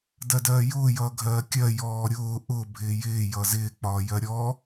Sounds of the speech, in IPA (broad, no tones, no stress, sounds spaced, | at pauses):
d ɜ d ɜː j ʊː j ʌː ɡʱ ɜː kʲ ɜ j ɔː ɾʲ ʊː ʔ ʊ bʱ ɪː j ɪː j ʌ z ɪː k͡p ɒː j ɜ ɾʲ ɔ